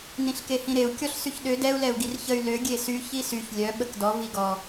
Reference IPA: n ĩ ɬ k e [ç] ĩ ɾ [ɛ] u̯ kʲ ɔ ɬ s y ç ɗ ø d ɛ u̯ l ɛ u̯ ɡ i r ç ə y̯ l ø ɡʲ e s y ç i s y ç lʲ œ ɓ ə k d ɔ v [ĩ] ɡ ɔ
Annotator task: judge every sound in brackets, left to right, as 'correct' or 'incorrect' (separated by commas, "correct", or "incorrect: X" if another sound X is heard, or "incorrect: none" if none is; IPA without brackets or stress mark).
incorrect: h, incorrect: e, incorrect: i